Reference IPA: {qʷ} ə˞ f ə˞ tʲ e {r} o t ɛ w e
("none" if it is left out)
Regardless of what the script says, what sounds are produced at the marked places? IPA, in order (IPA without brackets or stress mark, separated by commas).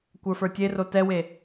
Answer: kʷ, r